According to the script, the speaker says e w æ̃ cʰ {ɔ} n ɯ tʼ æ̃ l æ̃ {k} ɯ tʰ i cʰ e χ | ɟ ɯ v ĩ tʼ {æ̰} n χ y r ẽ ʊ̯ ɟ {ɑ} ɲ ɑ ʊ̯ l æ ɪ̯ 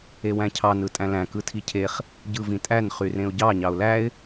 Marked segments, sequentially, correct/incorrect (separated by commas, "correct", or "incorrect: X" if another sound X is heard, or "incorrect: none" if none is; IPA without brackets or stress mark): incorrect: ɑ, correct, incorrect: æ, correct